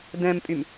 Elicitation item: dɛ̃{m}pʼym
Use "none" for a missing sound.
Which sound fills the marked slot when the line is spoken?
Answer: m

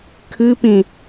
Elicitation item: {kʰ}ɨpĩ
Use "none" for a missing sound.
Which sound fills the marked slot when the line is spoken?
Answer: kʰ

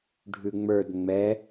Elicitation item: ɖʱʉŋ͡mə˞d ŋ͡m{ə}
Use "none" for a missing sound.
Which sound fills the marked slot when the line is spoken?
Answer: ɛ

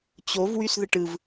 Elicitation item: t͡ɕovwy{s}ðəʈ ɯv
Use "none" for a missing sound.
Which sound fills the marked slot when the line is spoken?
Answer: s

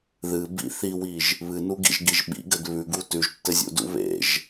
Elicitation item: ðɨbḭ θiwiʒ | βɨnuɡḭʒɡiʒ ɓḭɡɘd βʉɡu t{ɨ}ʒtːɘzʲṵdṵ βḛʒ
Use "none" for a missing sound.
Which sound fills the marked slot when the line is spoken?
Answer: ʉ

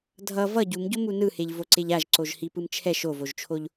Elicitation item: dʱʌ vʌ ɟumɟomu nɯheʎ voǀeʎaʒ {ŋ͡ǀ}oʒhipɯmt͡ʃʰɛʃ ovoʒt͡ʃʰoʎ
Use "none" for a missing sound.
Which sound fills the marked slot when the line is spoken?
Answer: ǀ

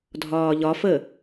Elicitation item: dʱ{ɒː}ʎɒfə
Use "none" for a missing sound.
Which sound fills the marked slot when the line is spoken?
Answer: ɒː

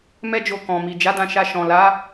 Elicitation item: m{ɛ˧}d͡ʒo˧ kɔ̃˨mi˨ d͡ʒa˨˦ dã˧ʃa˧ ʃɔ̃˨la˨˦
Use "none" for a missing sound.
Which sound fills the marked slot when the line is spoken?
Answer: ɛ˦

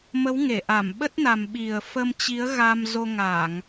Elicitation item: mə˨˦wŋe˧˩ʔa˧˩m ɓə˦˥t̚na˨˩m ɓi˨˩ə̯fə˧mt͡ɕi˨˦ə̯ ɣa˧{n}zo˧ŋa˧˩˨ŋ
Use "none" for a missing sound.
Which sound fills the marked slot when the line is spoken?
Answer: m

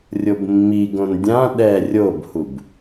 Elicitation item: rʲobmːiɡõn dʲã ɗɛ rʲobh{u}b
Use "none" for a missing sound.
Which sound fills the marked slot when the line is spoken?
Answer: u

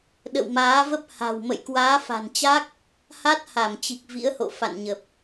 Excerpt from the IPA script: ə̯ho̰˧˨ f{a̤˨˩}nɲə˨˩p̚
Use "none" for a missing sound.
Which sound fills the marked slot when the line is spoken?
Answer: a̰˧˨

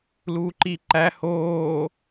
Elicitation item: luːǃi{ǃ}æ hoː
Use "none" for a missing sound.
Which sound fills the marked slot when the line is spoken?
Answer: ǃ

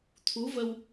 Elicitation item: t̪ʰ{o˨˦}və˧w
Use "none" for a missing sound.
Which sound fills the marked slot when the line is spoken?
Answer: u˨˦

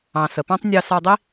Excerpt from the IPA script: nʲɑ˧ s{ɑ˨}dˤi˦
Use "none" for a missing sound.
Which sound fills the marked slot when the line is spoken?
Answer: ɑ˧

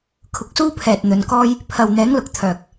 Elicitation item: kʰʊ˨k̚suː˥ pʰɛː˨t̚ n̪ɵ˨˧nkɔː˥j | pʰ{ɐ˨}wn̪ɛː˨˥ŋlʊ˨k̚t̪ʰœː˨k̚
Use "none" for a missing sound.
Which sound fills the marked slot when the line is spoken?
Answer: ɐ˨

